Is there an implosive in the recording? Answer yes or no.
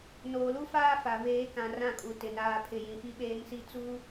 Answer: yes